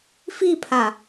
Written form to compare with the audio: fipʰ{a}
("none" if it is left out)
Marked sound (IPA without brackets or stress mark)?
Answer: a